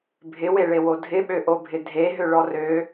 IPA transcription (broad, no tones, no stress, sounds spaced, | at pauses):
bʱ ɪ w e ɭ e w o dʱ ɪ ɓ ø ʔ o bʱ ɪ dʱ e ɦ ø ɭ ɔ r ø